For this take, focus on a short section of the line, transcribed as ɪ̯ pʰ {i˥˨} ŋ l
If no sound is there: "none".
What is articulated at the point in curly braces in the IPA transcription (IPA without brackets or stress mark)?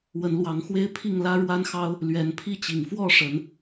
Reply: i˥˨